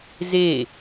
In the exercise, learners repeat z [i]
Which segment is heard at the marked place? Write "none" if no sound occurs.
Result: e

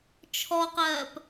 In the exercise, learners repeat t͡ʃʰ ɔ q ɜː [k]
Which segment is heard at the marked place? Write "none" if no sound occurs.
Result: p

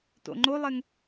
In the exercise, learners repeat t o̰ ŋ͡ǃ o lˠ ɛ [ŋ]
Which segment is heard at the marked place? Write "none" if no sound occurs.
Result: ŋ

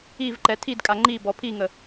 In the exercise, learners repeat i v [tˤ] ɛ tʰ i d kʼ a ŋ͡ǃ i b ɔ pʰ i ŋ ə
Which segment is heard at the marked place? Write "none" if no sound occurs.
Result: ǃ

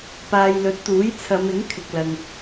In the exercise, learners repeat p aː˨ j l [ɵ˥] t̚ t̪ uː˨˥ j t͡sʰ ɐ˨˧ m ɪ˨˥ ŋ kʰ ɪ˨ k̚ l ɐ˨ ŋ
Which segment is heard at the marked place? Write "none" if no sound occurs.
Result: ɵ˨˥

